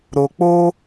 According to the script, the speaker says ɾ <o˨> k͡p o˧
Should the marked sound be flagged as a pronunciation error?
no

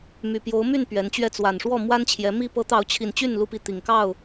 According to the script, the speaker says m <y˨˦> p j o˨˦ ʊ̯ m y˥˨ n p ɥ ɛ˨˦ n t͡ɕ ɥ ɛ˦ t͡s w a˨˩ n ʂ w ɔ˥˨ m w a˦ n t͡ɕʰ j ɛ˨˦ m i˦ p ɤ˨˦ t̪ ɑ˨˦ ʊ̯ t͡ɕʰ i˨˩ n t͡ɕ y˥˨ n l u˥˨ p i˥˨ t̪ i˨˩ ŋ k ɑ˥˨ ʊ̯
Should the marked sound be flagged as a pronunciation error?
yes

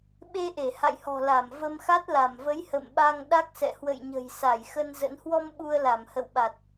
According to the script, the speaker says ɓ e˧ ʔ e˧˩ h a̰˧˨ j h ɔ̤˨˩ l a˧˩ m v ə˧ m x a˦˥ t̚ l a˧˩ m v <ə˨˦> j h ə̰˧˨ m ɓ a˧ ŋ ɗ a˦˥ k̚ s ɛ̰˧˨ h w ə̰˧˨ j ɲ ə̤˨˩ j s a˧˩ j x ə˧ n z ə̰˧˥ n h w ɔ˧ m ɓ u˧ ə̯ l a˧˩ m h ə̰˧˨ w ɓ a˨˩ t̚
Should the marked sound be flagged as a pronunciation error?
no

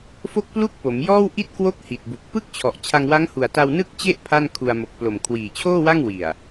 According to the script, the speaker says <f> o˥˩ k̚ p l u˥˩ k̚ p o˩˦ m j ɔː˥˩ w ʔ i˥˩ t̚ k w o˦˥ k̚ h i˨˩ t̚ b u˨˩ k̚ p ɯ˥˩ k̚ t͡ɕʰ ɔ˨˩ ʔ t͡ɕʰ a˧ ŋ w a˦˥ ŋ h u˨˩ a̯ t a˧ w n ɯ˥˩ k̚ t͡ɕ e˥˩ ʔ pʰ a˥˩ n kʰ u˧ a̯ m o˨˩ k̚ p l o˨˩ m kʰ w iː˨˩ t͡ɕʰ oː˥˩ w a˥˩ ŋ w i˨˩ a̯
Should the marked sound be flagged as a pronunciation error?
no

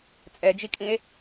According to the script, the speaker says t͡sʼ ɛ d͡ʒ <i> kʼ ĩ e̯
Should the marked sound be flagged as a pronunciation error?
no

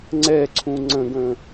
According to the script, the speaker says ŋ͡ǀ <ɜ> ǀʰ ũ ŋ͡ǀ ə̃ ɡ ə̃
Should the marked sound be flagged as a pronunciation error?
yes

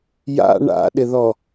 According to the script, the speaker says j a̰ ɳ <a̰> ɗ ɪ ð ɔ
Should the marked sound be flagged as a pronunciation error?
no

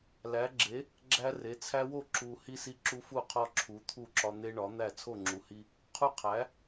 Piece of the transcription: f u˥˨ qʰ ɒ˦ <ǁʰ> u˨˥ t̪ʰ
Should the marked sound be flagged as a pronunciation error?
no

